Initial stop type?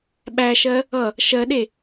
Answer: implosive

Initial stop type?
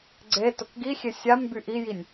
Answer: click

